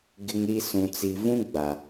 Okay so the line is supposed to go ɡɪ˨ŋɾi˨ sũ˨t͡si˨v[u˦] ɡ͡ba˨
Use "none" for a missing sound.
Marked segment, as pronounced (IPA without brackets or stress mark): ũ˦